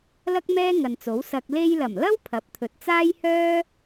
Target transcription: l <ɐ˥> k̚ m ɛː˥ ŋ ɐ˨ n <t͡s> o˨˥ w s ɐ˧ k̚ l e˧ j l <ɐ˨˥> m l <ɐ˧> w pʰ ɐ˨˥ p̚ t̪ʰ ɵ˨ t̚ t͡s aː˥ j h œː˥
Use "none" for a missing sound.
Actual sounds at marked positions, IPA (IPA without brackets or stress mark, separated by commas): ɐ˥, t͡s, ɐ˨˩, ɐ˥